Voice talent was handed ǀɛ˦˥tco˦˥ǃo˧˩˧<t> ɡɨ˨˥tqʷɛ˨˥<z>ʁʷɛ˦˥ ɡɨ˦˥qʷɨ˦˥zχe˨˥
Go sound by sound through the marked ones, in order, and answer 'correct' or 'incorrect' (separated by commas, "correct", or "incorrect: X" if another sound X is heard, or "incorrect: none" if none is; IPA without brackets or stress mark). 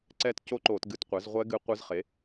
correct, correct